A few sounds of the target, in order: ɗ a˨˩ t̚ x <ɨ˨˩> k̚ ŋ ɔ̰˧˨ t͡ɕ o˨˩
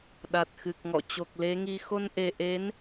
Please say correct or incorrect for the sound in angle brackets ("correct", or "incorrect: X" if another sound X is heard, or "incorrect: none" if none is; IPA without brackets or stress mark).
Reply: correct